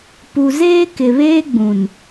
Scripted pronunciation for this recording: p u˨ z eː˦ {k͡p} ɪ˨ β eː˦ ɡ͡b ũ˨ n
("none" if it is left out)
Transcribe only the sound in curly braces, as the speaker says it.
k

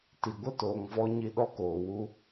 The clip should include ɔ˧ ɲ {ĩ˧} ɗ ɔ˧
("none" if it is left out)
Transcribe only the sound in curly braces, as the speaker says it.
i˧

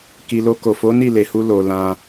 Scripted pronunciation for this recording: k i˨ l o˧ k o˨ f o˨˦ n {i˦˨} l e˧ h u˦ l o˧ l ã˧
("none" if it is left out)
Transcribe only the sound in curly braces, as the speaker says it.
i˦˨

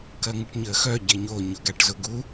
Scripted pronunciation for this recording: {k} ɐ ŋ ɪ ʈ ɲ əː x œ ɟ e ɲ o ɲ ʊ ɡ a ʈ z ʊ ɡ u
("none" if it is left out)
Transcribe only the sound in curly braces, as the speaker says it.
k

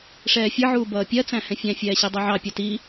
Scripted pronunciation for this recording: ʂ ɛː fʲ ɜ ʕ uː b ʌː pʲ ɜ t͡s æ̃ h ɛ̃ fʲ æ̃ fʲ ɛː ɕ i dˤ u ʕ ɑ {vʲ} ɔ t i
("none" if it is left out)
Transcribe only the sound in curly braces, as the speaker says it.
pʲ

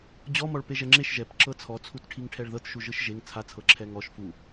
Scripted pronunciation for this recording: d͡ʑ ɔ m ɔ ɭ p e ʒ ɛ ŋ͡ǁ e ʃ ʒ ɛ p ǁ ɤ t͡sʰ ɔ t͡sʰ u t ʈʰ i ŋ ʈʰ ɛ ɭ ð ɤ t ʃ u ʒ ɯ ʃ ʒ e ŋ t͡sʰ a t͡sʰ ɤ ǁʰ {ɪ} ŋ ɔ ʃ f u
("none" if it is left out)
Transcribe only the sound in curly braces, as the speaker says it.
ɛ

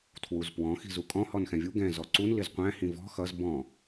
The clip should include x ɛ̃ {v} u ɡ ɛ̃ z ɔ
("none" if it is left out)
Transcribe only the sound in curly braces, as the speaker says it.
vʲ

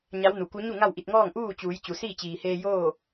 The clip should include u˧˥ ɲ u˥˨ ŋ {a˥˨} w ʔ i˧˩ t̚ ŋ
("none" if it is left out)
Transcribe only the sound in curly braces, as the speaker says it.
a˥˨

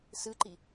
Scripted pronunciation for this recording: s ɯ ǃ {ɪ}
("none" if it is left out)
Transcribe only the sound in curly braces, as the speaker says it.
i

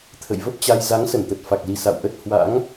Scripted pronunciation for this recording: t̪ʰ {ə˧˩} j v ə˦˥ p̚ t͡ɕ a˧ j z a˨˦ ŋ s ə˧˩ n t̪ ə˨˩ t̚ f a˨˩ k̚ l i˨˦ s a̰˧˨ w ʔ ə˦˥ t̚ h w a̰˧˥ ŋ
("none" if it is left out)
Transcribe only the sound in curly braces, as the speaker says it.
ə̰˧˨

